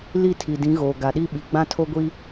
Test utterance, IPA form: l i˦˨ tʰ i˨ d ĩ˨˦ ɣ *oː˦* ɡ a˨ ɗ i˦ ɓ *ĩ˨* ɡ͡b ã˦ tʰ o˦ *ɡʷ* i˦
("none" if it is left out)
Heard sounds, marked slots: oː˨, i˨, ɡʷ

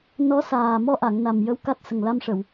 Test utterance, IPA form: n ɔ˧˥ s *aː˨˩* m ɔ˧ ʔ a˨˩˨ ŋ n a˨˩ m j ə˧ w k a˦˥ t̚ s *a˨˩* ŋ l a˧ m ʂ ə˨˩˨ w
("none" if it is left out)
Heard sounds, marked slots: aː˨˩, ə˨˩

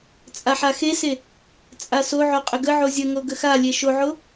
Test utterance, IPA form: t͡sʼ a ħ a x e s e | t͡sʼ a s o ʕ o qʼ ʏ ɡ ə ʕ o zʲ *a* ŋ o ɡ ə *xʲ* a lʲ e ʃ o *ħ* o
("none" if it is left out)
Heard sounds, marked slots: ə, x, ʕ

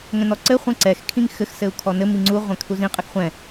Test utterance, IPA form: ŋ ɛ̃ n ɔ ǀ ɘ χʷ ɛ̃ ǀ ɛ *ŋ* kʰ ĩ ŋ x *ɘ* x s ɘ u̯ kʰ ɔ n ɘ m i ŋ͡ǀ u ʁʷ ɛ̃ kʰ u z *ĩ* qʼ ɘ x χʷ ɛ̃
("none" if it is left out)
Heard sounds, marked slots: x, ɘ, ĩ

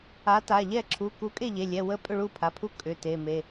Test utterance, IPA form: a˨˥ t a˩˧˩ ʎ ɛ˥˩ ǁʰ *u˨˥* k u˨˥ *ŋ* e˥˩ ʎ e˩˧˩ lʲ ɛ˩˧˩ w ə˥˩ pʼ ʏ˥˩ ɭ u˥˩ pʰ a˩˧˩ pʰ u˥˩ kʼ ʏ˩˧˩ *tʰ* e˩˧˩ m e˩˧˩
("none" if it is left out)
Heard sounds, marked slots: u˩˧˩, kʼ, t

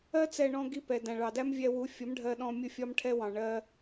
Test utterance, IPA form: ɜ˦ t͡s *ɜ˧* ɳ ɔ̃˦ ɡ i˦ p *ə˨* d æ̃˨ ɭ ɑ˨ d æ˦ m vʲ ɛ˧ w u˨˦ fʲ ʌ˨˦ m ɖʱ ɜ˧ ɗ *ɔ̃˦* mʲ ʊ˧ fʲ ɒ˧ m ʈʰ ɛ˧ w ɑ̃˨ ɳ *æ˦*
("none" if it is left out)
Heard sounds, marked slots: ɛ˧, ɛ˨, ɔ̃˧, ɜ˦

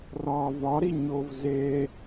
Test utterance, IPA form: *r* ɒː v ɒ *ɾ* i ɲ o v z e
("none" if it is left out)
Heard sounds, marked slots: r, ɾ

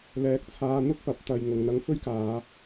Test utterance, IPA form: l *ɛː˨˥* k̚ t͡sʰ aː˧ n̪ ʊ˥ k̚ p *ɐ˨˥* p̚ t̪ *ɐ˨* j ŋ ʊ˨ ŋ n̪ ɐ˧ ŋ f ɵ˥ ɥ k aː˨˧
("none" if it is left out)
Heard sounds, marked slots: ɛː˨˥, ɐ˨˥, ɐ˨

